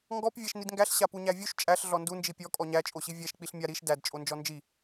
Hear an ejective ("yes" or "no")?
yes